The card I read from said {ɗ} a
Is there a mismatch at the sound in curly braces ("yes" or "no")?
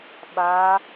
yes